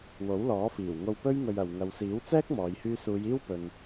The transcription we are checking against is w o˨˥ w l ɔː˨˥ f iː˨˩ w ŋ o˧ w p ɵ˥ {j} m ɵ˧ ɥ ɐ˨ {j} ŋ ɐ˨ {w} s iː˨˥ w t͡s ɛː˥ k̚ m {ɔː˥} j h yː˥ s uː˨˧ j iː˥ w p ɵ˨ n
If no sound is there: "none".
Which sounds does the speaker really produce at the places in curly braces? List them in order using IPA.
ɥ, w, w, ɔː˨˧

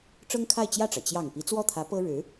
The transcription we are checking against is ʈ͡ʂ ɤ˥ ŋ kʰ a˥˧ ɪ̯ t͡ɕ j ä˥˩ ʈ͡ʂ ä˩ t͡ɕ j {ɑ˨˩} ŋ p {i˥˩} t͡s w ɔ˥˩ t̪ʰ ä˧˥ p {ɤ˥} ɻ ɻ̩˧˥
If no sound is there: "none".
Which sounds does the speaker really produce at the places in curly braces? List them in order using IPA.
ɑ˨˩, i˧˥, ɤ˥

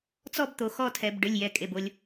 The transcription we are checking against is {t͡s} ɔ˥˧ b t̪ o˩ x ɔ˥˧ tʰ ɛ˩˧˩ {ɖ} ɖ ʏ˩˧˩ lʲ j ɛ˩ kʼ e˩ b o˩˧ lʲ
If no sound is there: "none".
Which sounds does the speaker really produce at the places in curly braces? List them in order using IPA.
t͡s, b

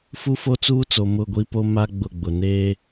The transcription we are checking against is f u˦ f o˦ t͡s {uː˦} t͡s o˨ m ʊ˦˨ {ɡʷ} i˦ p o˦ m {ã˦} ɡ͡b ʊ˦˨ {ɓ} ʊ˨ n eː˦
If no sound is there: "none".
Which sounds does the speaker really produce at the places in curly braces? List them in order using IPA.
uː˦, ɡʷ, a˦, ɡ͡b

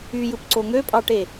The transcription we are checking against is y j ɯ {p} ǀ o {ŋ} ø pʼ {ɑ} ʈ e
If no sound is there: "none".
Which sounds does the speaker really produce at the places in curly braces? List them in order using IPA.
p, ŋ, ɑ

